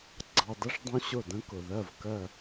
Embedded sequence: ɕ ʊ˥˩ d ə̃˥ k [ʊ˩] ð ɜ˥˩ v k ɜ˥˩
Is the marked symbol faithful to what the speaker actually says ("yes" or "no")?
yes